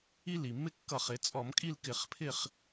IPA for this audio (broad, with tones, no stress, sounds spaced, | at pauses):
i˦ l i˩ mː ɪ˦ kː ʌ˧˩˧ χ ɪ˩˧ t͡sʼ ɔ˧˩˧ m kʼ i˥˨ l k ɪ˧˩ χ pʰ ɪ˥˨ χ